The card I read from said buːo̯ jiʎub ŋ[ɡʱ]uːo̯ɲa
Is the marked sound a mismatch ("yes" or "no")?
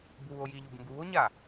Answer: yes